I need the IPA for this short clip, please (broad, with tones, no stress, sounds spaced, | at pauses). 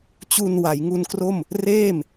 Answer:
t͡ɕ u˧ n w a˩˦ j ŋ u˧ n k r o˥˩ m | r eː˥˩ m